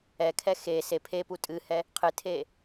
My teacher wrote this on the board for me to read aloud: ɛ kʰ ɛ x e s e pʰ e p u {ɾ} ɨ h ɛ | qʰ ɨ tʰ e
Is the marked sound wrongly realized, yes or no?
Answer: yes